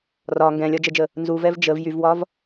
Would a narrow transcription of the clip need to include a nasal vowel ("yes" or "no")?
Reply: yes